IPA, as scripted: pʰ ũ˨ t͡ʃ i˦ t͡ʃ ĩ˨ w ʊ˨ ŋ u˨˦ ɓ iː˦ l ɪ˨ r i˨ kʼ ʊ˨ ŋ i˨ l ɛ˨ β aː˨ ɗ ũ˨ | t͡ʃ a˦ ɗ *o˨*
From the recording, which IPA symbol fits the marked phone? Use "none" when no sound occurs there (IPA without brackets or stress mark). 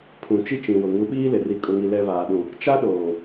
oː˨